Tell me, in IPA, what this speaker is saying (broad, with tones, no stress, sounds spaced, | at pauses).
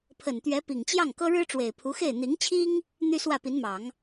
pʰ ə˨˩ n t̪ ɥ ɛ˧˥ p i˨˩ ŋ t͡ɕ j ɑ˥˩ ŋ k ɤ˥ ɻ ɻ̩˥ ʈ͡ʂ w e˨˩ ɪ̯ pʰ u˧˥ x e˥˩ ɪ̯ n̪ i˧˥ ŋ t͡ɕʰ i˥ ŋ | n̪ y˥ s w ä˥˩ p i˧˥ n m ɑ˨˩˦ ŋ